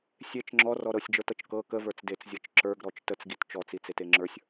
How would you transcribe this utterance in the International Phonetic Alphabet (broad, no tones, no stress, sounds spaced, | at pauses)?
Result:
sʲ e t͡ʃ ŋ͡ǁ ɔ r ɔ ɾ ɤ sʲ d͡ʒ ə˞ t ɤ t͡ʃ k ɤ k ə v ə˞ t͡s d e t͡s zʲ ɤ t͡ʃ ǁ ə˞ ɡ ɾ ɔ t͡ʃ t ə t͡s ɡ i t t͡ʃ ɔ t͡s i t͡s e t e ŋ͡ǁ ə˞ sʲ